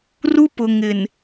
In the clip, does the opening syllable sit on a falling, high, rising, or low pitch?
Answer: high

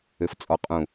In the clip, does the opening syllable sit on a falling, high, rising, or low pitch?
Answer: low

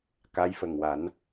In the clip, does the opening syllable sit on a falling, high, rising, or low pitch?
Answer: rising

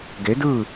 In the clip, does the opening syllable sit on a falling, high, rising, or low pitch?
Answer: rising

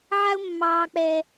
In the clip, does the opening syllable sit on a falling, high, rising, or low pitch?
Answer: high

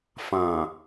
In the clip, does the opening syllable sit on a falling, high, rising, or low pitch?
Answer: low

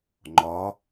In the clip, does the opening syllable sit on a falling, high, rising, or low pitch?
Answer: rising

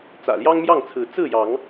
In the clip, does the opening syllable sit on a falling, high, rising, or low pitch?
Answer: low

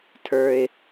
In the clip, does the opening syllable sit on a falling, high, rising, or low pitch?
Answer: high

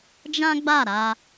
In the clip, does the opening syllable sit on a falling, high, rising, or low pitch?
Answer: high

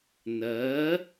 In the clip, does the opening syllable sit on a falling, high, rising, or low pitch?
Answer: rising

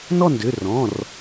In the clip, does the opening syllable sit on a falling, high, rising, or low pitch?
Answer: falling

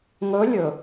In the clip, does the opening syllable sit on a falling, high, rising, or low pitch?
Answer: rising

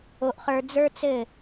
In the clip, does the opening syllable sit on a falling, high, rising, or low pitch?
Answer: high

